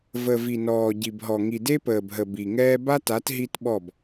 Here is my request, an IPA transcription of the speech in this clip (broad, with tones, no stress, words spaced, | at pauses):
və˨vi˨nɔː˨ ɟi˨bɦɔ˨ ŋi˨de˦pəː˨bɦə˨ bi˨ ŋɛː˦ ba˦ta˨˦t ɦi˦tɓɔ˦˨b